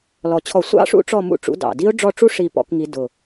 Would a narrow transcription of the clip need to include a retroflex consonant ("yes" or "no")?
yes